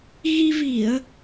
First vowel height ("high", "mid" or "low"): high